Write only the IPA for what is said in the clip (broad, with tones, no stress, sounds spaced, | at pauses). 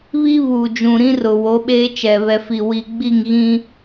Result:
β i˦ β uː˨ d͡ʒ ũ˨ ɾ ĩ˦ r ʊ˨ w o˨˦ ɓ eː˦ t͡ʃ ɛ˨ β ɛ˨ f i˨ w i˨ ɡ͡b i˦˨ ŋ ɣ ĩ˦